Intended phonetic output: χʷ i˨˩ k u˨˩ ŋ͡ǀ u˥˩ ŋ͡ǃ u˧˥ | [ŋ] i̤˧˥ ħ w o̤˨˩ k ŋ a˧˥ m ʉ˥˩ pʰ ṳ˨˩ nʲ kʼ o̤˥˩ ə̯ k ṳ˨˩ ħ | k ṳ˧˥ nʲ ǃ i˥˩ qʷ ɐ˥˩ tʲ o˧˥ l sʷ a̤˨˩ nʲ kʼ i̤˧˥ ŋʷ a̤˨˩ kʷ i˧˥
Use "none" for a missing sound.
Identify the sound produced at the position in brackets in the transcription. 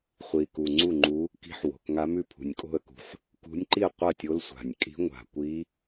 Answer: k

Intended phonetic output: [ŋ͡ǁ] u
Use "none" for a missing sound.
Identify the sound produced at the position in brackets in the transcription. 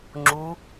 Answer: ŋ͡ǁ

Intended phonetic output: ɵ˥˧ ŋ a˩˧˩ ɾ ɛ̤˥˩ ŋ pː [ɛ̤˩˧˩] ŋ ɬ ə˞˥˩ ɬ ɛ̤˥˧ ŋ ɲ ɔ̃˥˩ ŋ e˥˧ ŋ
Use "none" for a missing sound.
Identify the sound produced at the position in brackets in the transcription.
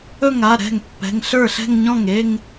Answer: ɛ̤˩˧˩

